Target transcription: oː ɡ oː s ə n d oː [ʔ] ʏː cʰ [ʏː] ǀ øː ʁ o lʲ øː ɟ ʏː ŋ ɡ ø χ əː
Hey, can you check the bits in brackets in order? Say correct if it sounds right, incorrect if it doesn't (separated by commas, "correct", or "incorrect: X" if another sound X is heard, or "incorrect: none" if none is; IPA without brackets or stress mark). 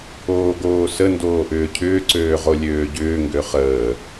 correct, correct